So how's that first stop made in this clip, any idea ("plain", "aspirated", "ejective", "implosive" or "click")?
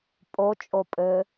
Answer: ejective